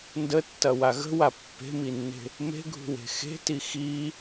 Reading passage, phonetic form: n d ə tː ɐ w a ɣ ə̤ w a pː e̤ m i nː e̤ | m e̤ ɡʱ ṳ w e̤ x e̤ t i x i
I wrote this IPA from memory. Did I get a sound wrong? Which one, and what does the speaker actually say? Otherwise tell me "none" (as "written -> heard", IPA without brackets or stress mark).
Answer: none